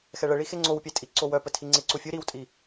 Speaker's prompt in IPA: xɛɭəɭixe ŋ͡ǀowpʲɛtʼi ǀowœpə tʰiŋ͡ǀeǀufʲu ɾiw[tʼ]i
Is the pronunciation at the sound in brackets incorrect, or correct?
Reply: correct